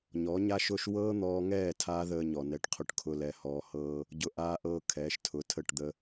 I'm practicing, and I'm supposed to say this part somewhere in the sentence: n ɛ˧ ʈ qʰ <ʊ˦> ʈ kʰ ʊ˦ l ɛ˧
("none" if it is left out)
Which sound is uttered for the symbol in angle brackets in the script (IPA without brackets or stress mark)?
ʊ˦